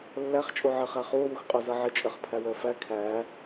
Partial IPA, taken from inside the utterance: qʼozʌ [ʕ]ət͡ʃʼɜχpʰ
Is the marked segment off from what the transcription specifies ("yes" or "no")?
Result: no